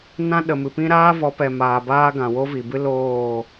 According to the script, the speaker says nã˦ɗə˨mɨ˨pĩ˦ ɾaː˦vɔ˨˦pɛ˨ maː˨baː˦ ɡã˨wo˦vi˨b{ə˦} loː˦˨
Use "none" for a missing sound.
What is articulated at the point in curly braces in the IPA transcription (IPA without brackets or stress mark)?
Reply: ɨ˦